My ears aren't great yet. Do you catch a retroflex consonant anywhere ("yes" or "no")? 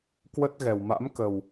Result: no